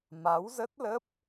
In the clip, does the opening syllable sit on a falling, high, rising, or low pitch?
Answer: rising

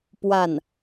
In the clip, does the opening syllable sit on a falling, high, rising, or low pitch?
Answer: falling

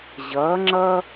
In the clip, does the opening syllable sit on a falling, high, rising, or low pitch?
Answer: rising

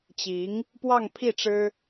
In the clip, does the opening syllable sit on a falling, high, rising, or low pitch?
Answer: rising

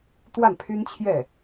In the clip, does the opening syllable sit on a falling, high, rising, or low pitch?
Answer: falling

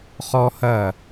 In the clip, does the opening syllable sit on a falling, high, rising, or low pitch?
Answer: high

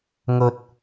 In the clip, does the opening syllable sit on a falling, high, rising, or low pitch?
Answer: high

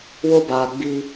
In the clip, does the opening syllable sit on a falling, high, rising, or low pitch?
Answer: high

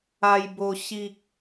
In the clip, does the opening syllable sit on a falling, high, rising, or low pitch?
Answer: high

